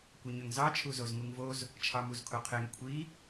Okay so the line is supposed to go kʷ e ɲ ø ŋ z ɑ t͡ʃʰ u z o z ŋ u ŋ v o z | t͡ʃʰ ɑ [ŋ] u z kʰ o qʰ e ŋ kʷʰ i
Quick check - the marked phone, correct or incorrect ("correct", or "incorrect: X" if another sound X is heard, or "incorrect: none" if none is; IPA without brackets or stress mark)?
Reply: incorrect: m